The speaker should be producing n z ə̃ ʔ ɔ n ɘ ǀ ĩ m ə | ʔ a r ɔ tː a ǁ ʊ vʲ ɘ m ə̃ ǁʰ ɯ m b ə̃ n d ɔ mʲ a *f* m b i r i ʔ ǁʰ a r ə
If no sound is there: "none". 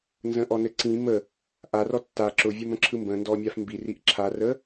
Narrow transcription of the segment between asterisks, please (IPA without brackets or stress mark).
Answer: f